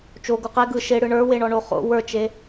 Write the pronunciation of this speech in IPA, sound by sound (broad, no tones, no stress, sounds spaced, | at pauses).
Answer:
t͡ʃ o ɡ u q e ɡ ɯ ʃ e ɽ ɯ ɳ ə˞ w e ɳ ɔ ɳ o χ o̰ w ə˞ t͡ʃ e